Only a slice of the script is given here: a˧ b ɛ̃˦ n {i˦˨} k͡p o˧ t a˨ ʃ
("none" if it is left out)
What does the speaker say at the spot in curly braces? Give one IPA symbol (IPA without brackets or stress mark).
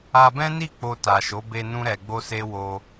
i˦˨